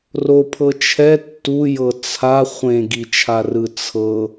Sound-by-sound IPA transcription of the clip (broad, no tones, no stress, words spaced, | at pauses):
ropʰɤ t͡ʃʰɛ tːujɤ t͡sʰa χʷẽɡit͡ʃʰarɯ t͡sʰɤ